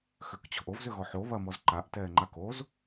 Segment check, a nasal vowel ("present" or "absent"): absent